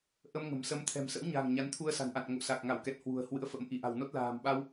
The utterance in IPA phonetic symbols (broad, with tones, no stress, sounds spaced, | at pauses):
ʔ ə˧ m ŋ ə̤˨˩ m s ə˨˦ m t̪ʰ ɛ̤˨˩ m s ə̰˧˥ w ɲ a̤˨˩ ŋ ɲ a˨˦ n t̪ʰ u˧ ə̯ s a̤˨˩ n ʔ a̰˧˨ n ŋ o̰˧˨ s a˨˩ k̚ ŋ a˧˩ w k ɛ˨˩ t̚ h w ṳ˨˩ ə̯ h w ɨ̰˧˥ ə̯ f ə̰˧˥ m ʔ i˧˩ ʔ a̤˨˩ w n o˦˥ t̚ l a̤ː˨˩ m ɓ a˧ w